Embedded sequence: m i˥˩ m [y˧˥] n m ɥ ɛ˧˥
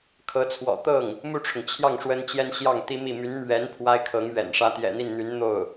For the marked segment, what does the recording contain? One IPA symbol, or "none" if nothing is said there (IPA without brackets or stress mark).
y˧˥